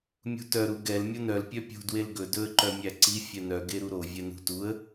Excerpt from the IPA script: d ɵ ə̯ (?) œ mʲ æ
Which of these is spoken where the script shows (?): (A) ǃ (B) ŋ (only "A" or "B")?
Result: A